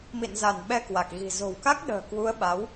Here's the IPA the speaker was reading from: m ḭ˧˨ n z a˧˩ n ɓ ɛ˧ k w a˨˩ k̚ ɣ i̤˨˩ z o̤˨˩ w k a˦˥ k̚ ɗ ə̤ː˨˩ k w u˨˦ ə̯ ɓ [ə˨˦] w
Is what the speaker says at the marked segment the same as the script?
no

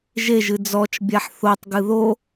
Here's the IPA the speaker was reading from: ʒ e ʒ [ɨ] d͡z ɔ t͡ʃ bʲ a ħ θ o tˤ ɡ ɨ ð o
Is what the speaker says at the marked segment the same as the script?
yes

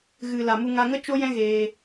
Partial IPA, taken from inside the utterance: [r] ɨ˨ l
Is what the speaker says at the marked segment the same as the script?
no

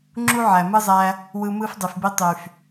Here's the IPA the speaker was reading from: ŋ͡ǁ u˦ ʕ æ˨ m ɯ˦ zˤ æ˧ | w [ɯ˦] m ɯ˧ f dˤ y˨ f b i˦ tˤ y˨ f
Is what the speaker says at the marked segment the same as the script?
no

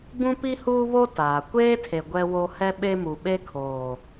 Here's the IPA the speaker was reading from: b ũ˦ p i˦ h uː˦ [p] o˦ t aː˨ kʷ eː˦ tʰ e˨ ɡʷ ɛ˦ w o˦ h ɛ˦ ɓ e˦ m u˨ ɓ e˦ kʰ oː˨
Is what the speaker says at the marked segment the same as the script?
no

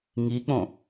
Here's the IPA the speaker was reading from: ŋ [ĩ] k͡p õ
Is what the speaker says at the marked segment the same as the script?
no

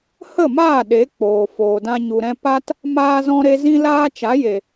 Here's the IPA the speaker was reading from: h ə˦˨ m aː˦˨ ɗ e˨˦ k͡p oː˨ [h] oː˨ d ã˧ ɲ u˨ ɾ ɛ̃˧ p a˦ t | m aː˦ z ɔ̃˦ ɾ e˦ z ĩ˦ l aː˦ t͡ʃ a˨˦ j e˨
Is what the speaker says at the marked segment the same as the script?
no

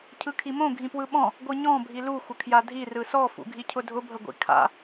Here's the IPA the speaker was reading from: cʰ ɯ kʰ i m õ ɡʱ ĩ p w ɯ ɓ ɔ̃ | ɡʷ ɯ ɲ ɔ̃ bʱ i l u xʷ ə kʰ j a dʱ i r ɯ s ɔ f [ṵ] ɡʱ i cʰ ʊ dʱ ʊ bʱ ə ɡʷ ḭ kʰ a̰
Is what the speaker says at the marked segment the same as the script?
yes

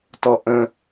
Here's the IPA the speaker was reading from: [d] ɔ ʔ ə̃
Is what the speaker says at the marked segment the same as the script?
no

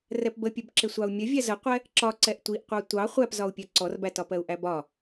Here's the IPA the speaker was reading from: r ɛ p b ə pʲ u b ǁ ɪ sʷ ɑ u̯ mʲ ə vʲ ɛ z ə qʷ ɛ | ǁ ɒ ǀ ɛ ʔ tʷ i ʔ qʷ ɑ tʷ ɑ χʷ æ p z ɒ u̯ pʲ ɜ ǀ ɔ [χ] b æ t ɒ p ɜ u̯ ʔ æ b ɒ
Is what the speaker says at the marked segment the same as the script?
no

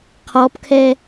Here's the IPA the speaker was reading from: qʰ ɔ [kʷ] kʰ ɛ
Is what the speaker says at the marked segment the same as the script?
no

